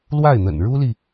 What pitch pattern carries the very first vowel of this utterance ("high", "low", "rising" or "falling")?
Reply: falling